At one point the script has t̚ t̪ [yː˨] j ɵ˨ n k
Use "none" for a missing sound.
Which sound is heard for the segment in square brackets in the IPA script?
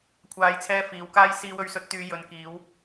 yː˨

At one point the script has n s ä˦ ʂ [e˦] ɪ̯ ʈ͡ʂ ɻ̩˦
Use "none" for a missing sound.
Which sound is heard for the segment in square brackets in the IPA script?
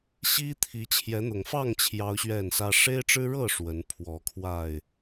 e˦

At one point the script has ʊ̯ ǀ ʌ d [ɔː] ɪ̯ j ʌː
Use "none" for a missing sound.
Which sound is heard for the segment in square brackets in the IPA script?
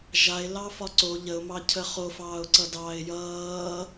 ɑː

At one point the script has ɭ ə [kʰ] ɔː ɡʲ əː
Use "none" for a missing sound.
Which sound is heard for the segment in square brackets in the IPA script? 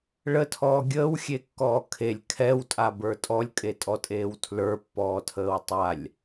tʰ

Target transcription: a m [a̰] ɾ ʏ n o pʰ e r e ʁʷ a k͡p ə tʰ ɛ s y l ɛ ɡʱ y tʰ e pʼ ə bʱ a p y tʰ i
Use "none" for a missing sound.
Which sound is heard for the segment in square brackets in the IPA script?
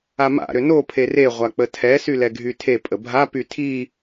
a̰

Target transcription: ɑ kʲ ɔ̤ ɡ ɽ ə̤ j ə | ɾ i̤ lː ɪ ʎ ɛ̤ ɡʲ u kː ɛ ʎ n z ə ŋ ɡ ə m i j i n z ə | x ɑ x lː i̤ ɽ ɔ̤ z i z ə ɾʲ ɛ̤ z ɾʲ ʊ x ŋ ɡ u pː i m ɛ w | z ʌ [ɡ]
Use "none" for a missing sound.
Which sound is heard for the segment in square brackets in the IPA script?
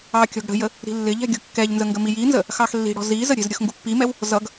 ɡ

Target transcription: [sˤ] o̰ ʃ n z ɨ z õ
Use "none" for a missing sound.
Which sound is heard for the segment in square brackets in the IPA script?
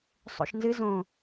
sˤ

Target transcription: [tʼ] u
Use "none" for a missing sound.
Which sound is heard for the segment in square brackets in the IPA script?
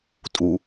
tʼ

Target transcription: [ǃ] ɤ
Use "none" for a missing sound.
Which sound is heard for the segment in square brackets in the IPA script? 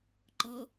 ǃ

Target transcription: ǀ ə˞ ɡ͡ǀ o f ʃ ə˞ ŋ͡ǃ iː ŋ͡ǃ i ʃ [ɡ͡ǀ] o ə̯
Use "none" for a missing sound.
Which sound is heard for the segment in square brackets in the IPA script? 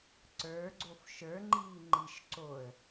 ǀ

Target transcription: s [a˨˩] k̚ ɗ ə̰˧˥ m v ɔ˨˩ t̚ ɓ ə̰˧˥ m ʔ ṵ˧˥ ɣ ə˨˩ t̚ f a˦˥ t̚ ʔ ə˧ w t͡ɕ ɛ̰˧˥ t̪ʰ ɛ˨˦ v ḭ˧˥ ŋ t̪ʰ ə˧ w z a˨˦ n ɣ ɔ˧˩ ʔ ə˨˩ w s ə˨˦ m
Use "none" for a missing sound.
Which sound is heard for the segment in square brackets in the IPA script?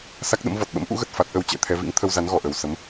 a˦˥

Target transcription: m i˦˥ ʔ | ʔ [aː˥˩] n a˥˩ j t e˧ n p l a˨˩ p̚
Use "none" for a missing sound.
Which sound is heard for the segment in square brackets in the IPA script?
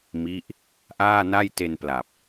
aː˥˩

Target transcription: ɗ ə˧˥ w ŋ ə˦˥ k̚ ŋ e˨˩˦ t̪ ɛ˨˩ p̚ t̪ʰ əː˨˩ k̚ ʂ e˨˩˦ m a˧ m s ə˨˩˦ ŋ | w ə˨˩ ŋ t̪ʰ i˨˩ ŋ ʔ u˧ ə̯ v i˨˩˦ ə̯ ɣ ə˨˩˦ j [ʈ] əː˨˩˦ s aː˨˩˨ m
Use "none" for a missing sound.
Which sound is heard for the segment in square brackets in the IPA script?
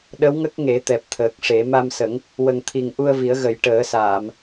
ʈ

